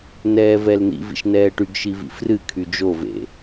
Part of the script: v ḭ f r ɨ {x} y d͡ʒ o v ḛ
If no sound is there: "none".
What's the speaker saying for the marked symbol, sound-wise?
kʰ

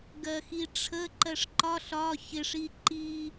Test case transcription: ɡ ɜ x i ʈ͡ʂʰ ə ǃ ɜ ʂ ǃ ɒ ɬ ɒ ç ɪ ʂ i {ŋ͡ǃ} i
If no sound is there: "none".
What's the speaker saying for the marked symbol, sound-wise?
ǃ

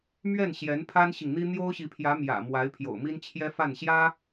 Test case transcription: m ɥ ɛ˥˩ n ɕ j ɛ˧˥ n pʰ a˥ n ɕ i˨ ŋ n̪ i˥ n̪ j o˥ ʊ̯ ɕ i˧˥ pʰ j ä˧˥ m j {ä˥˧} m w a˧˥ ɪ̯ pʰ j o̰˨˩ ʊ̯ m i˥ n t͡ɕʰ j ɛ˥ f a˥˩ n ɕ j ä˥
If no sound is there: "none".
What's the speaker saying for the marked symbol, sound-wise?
ä̰˨˩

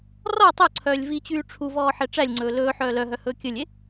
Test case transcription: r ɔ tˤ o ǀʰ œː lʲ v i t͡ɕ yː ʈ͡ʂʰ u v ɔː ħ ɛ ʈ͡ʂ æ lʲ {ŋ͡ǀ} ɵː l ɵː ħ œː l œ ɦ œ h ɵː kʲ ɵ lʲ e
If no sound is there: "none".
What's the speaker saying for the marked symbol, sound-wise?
ŋ͡ǀ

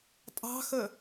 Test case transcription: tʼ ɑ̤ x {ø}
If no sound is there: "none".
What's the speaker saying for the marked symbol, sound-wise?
ə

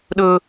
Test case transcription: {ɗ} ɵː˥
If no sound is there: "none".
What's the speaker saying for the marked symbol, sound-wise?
ɗ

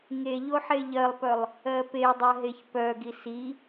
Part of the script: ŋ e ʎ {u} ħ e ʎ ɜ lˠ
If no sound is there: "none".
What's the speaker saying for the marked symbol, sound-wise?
o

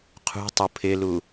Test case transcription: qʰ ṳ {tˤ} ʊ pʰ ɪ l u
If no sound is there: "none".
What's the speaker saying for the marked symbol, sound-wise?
tˤ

